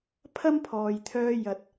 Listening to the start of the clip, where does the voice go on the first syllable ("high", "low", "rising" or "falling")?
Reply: high